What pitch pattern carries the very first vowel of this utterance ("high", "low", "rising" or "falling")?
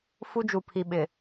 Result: high